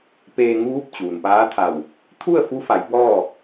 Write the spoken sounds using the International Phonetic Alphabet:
p eː˧ ŋ uː˧˥ p̚ t͡ɕ uː˩ n p aː˧˥ t̪ʰ a˧˩ w | t̪ʰ u˥˨ ə̯ f u˧˥ f a˩˧ j b ɔː˥˨

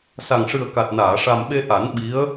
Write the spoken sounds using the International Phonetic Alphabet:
s a˨˩ ŋ ʂ ɨ˨˩ ə̯ k a˨˩ t̚ n aː˨˩˨ ʂ a˨˩ m ɓ e˧ ʔ a˨˩˦ n ɓ i˧˥ ə̯

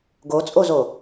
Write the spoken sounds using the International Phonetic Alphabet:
ɡ o t͡sʼ o z o

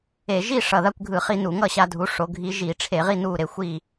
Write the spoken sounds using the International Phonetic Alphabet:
e˧˩˧ ʒ i˥˨ ʂ ʌ˨˩ ð a˥˨ kʷ ɡʱ ɯ˧˩˧ χ i˧ n u˧˩˧ ŋ ʌ˥˨ ɕ a˧ dʱ u˩˥ ʂ o˩˥ ɡʱ i˧˥ ʒ i˧˩˧ ʈ͡ʂʰ e˧˩˧ ʁ i˥˨ n u˥˨ ɾ e˩˥ xʷ i˥˨

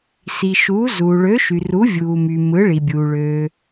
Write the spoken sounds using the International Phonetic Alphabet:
s i˩ ʃ uː˩˥ z uː˩ ɭ ø˩˥ ʃ y˩ r u˩˥ vʲ uː˩ m y˩ m ɯ˩˥ ɭ i˩ bʲ uː˩ ɭ ø˩

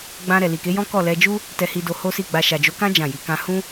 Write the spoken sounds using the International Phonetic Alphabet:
ɡ͡b ã˧ ɾ ɛ˨ l i˨ k e˨˦ j ɔ̃˦ k ɔ˦˨ l ɛ˧ d͡ʒ u˦ | t ɛ˧ h i˧ d o˧ h o˦ s i˦˨ ɡ͡b a˧ ʃ a˨ d͡ʒ o˨˦ k ã˦ d͡ʒ ã˦˨ j i˨˦ k ã˧ h ũ˦

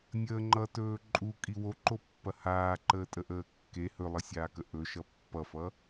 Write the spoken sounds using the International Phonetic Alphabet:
nʲ əː ŋ͡ǃ ʌ t ɵː ǃʼ u kʼ i w o ǃ o pː ɐ h aː ǃ əː tʼ ə ʔ əː kː e h ɵ lˠ ʌ sʲ aː k ə ʔ ɵ ʃ ʌ pː ʌ f ʌ

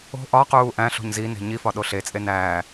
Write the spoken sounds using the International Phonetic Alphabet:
o̤ ʔ ɒ q uː ʔ æ̃ ɬ o̤ ɲ z i n e̤ ɲ i f ɒ ɗ o ɬ e t͡sʼ e n æː

